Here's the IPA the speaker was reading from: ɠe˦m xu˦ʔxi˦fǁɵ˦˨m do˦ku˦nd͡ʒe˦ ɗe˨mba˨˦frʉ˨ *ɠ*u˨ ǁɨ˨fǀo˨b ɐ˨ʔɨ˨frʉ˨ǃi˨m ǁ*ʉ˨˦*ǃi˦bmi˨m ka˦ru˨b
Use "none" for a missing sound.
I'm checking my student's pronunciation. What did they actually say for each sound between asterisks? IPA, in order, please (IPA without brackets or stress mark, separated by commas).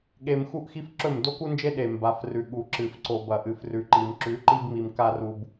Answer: ɠ, ʉ˨˦